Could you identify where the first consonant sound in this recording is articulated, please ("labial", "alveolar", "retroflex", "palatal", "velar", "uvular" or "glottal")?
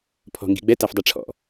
labial